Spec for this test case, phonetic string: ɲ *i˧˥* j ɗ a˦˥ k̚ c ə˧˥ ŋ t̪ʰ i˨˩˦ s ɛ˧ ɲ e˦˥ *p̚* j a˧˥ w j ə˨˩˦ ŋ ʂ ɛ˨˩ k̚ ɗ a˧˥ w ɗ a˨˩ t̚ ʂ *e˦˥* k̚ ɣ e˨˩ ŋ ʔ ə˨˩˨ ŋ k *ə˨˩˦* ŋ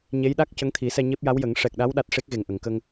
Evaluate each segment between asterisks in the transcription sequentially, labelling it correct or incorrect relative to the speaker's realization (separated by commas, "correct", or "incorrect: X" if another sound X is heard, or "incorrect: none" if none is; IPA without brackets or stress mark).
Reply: incorrect: e˧˥, correct, correct, incorrect: ə˧